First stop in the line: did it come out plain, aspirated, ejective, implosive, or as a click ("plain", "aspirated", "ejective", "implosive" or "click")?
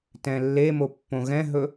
plain